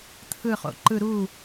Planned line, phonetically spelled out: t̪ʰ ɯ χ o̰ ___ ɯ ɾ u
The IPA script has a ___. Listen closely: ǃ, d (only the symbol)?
ǃ